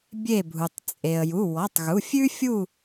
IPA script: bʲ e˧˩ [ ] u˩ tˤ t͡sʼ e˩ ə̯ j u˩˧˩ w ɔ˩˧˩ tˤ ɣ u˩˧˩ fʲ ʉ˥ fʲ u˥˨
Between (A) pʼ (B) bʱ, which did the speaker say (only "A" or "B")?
B